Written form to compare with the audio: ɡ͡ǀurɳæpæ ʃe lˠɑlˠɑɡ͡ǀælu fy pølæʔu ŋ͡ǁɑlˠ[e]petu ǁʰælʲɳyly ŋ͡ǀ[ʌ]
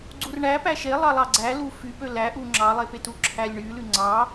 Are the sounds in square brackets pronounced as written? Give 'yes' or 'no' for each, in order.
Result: yes, no

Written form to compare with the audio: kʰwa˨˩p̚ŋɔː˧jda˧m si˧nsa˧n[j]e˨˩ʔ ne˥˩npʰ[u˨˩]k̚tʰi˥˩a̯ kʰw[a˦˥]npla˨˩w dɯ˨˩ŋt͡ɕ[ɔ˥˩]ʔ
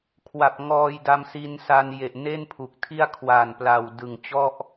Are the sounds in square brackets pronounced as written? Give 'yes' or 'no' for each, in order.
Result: yes, yes, no, yes

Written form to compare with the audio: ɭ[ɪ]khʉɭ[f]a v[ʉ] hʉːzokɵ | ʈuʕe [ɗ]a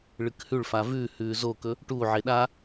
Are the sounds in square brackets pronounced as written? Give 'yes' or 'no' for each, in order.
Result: no, yes, yes, yes

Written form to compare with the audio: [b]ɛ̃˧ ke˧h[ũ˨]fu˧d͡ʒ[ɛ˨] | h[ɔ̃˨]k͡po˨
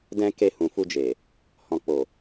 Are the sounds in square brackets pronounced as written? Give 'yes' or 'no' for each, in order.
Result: no, yes, no, yes

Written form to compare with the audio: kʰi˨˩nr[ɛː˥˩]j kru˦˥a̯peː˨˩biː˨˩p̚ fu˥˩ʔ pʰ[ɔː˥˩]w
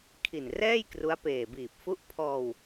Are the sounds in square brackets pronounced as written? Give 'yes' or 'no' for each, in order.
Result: yes, no

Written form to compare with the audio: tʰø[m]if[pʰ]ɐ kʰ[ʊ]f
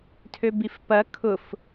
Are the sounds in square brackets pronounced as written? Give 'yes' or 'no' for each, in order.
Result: no, no, yes

